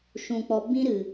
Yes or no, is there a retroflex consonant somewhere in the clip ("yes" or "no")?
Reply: no